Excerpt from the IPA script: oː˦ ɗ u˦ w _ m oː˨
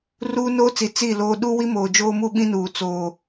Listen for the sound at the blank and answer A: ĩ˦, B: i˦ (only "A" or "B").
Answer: B